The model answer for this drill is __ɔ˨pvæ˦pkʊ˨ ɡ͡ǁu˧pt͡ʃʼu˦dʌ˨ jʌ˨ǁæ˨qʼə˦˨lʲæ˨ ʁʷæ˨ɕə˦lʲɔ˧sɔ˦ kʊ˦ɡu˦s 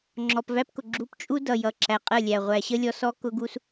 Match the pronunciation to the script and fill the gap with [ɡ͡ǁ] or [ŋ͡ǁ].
ŋ͡ǁ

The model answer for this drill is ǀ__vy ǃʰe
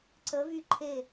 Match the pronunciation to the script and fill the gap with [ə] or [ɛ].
ə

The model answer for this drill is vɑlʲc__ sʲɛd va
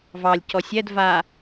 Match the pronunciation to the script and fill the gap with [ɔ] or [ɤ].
ɔ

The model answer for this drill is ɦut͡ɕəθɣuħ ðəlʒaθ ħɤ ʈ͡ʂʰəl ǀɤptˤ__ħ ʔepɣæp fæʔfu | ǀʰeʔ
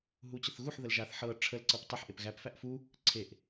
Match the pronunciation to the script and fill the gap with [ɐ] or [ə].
ə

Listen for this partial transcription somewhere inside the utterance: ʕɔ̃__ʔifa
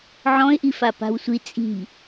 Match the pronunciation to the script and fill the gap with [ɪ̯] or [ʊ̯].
ɪ̯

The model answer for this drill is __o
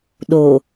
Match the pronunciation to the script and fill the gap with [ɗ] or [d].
ɗ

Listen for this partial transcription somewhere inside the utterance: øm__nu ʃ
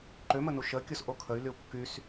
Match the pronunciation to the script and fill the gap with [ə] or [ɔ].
ə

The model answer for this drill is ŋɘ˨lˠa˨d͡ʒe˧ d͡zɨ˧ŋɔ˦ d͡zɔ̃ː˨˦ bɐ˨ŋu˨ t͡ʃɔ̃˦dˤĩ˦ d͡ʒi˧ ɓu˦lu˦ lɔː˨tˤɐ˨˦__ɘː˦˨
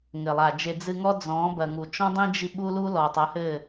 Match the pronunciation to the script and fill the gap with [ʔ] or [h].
h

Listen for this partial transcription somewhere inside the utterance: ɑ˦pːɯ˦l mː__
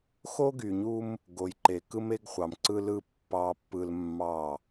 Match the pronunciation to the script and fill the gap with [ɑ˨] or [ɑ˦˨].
ɑ˦˨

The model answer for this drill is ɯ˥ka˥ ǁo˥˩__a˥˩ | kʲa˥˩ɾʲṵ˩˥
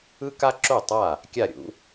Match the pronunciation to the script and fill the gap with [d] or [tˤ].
tˤ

